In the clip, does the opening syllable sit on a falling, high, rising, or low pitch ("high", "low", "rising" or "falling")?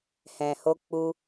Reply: low